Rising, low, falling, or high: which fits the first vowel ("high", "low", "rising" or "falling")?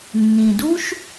low